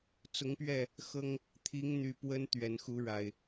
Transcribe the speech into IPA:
t͡s ʊ˨˦ ŋ p ɥ ɛ˥˨ | x ɤ˦ ŋ | t̪ʰ i˨˦ ŋ n̪ y˨˩ p w ə˦ n t̪ ɥ ɛ˨˩ n x u˨˦ ɻ a˨˩ ɪ̯

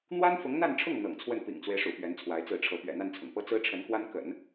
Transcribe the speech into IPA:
n̪ w a˥ n f ʊ˧˥ ŋ n̪ a˥˧ n ʈ͡ʂʰ ʊ˥˩ ŋ n̪ ɤ̰˨˩ ŋ t͡sʰ w ə˥˩ n p ḭ˨˩ ŋ t͡s w e˦ ɪ̯ ʂ ṵ˨˩ p ɥ ɛ˧˥ n t͡sʰ w a˧˥ ɪ̯ t͡s ɹ̩˥˩ ʈ͡ʂʰ ɤ˧˥ p ɥ ɛ̰˨˩ n̪ a˥˩ n t͡sʰ ʊ̰˨˩ ŋ p ɤ˥ t͡s ɹ̩˥ ʈ͡ʂʰ ə˧˥ n k w a˥ n k ə̰˨˩˦ n

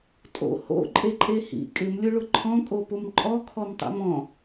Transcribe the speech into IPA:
tʼ o̰ h o̰ ǃʼ e ǃʼ e h ḭ kʼ ɪ m lʲ ʊ ɭ ʊ ǃʰ ɔ̃ kʼ o p ʊ m ǃʼ ɔ kʰ ɔ m tˤ ḭ m ɔ̃

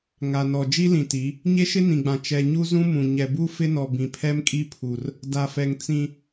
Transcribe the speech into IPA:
ŋ a˨ n ɔ˨ d͡ʒ i˦ l ĩ˨ t i˨˦ | ɲ e˦ ʃ ɪ˦ n ĩ˨ ɡ͡b ã˨ t͡ʃ ɛ˨ ɲ u˦ z ũ˦ m ũ˨ ɲ ɛ˨ b u˦ f ɪ˦ n ɔ˨ b ĩ˨ pʰ ɛ˦ m kʼ i˦ pʰ u˨ r | d a˨ f ɛ˨ ŋ t͡s ĩ˦

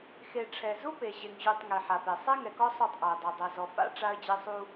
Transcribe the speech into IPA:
x e˨ ʈ͡ʂʰ ɛ˨ z u˦ p e˨ ʑ e˨ ŋ ʑ ʉ˨ tˤ ŋ e˨ ħ a˨ p e˨ sˤ ɛ˦ ŋ ɛ˨ k ɔ˦ sˤ u˦˨ tˤ ʔ a˨ ə̯ dˤ ʉ˨ dˤ ɛ˨ z ɔ˨ f a̰˦ ʈ͡ʂ a˦ ə̯ d͡ʑ e˦ sˤ u˦

